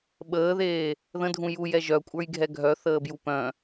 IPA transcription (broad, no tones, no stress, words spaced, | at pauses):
ɓəːðeː | ðə̃dʱũ juj ɛʒœkʷʼə˞jɡʱɛ ɡʱœ θəːbjupœ̃